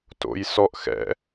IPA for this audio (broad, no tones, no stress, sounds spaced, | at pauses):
t o̰ j s ɔ ʔ x ɛ̰